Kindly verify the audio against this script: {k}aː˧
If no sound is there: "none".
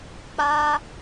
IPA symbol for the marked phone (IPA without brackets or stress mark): k͡p